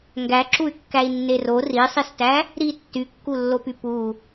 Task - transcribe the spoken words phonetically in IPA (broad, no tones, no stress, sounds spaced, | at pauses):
ŋ ɡ æ ǁ u y̯ kː æ i̯ nː e r o r i sˤ i s t æ | ɾ i tː y kː u lː o p y p u